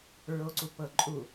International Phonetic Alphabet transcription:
ɹ o ǀ u p ɤ ǃʼ u

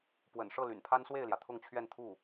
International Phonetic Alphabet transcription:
p w ə̰˨˩ n ʂ ɤ˥˩ l y̰˨˩ n pʰ a˥ n s w e˥˩ ɪ̯ l j ä˩ t̪ʰ ʊ˥˧ ŋ t͡ɕʰ ɥ ɛ˥˧ n t̪ʰ u˥˩

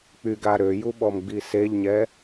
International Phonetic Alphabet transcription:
k͡p y ɡ a ɾ ø j u ɓ ɔ m ɡ͡b i s e ʎ ɲ ɛ

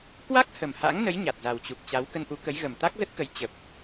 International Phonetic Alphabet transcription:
k w a˦˥ k̚ h ə˨˩ m h a̰˧˥ ŋ n ə˨˦ j ɲ a˨˩ t̚ z a˨˩ w t͡ɕ u˨˩ k̚ t͡ɕ a˨˦ w k ə˧ n ʔ u˨˦ k ə˨˦ j ɣ ə˨˩ m t̪ a˦˥ k̚ z ə˦˥ t̚ k ə˨˦ j t͡ɕ ə˨˩ p̚

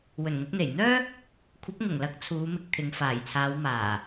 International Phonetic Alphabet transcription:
w ɵ˨˩ n ŋ ʊ˧ k̚ n̪ e˨˩ j n̪ œː˥ | kʷʰ ɐ˨˥ p̚ ŋ ʊ˨˩ ŋ l ɐ˨˥ k̚ t͡sʰ uː˨˧ m ɪ˧ k̚ t̪ʰ ɪ˨˧ ŋ f aː˨˩ j t͡sʰ aː˨˧ w m aː˨˩

